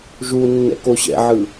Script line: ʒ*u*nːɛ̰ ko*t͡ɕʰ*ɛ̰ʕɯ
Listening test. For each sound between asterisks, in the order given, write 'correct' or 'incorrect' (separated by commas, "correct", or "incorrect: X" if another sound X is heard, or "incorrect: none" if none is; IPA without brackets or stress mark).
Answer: correct, incorrect: ɕ